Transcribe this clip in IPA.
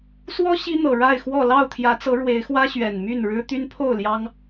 s w ɔ˦ ɕ i˦ n̪ ɤ˨˩ ɻ a˥˨ ɪ̯ x w ɔ˥˨ l ɑ˥˨ ʊ̯ t̪ʰ j ä˨˦ t͡s ɤ˨˦ ɻ w e˨˦ ɪ̯ x w ä˦ ɕ ɥ ɛ˨˩ n m y˥˨ n ɻ ɻ̩˦ t̪ y˦ n pʰ o˥˨ ʊ̯ l j ɑ˦ ŋ

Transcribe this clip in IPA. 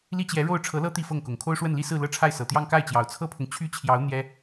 l i˥ t͡ɕ j ɛ˧˥ ɻ o˥˩ ʊ̯ ʈ͡ʂʰ ɤ˧˥ l ɤ˥ t̪ i˥˧ f ɤ˥˩ ŋ k ʊ˨˩ ŋ kʰ o˥ ʊ̯ ʂ w ə˥˩ n l i˥ s ɹ̩˥˧ l ɤ˥˧ ʈ͡ʂʰ a˥˩ ɪ̯ s ɤ˨˩ t̪ j ɑ˥˧ ŋ k a˥˩ ɪ̯ t͡ɕ j ɑ˨˩ ʊ̯ t͡sʰ ɤ˥ pʰ ʊ˨ ŋ t͡ɕʰ y˥ t͡ɕʰ j ɑ˧˥ ʊ̯ n̪ j ɛ˥

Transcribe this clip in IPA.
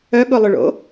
œ ɠ ʊ lˠ ʏ ɭ o̰

